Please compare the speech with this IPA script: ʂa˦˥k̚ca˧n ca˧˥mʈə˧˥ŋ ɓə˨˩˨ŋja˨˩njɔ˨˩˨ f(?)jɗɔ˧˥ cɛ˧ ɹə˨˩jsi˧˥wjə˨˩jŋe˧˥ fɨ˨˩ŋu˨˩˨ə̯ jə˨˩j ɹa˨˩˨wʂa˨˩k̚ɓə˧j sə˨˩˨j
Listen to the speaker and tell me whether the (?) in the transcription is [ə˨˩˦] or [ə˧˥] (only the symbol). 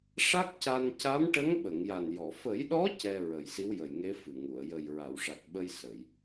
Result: ə˨˩˦